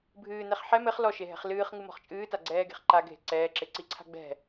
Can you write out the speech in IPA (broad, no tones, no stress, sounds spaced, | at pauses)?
bʱ ɨː n ɛ χ ħ ɛ m ɘ χ l ɔ ʃ e ɦ ɛ̤ χ l ɨː χ ŋ ɨ m ɔ̤ χ t͡ʃʼ ɨː t a ɡ͡ǀ ɛː ɡ e̤ χ ǃ a ɡʱ e̤ ǀ ɛː ǁ e ǀ i ǀʰ a̤ ɡ͡b ɛ̤